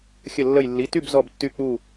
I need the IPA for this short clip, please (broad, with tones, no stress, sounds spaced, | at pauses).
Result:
xʲ ə˧˩ lː ə˧˩ j lː i˩˧˩ t y˥˨ b z ɔ˧˩ b tː y˧˩ k͡p u˧˩